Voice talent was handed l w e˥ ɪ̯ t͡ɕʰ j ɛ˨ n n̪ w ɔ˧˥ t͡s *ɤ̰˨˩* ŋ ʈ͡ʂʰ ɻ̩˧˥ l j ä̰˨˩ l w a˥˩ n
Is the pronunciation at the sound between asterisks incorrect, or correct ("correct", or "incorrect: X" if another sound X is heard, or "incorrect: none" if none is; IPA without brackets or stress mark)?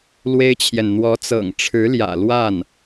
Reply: correct